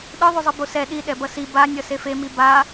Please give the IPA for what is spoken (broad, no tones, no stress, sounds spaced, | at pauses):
ɗ ɯ ðˤ u zˤ ɯ b o s ɛ ɗ i ɗ ɛ b ʌ s i b a nʲ ʌ s e f e m i b a